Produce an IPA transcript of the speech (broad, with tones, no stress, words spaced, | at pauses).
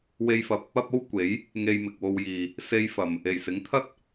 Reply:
we˧jfɐ˨p̚ | ɐ˥p̚o˥w kʷe˨˥j | ŋe˧jmɪ˨k̚wo˧wjiː˨ | se˥jfɐ˨m | e˨˩jsɪ˨˥ŋt̪ʰɐ˥t̚